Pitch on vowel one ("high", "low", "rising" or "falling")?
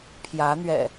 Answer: rising